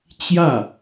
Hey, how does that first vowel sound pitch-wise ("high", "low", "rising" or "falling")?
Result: falling